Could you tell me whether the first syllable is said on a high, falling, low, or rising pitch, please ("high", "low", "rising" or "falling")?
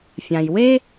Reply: low